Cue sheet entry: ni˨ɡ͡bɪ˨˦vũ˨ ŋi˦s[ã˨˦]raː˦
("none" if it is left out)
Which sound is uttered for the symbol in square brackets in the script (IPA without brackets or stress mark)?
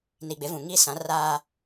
ã˨˦